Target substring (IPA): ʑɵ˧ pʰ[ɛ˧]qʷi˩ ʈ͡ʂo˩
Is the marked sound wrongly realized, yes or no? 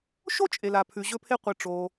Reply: yes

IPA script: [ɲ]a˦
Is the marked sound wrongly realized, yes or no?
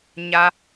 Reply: no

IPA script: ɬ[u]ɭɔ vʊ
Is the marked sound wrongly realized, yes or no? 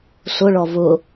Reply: yes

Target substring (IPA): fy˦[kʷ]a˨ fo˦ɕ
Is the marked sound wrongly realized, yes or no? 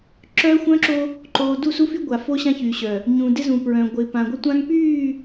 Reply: yes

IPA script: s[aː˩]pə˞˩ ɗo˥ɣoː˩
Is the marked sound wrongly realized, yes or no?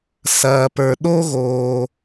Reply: yes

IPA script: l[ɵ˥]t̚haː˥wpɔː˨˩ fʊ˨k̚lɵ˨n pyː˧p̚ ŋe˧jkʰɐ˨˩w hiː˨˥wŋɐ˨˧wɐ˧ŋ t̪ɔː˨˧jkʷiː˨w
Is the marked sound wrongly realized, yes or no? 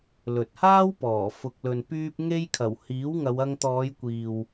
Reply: yes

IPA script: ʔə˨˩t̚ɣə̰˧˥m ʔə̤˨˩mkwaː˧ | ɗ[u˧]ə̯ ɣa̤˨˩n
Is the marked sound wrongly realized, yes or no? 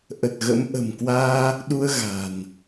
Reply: no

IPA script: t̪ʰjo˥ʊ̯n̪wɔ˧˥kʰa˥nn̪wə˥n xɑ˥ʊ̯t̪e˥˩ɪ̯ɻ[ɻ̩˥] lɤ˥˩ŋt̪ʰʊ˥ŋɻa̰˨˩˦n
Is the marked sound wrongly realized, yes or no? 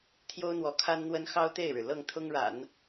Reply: yes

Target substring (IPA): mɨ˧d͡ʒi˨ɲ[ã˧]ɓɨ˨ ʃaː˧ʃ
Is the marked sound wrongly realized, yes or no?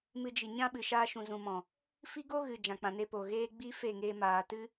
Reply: yes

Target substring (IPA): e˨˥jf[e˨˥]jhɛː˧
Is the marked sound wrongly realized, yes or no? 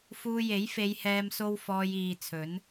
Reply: yes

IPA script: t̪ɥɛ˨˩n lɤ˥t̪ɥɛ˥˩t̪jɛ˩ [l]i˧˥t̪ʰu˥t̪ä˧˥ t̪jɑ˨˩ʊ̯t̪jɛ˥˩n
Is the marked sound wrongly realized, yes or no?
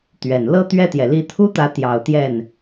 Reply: no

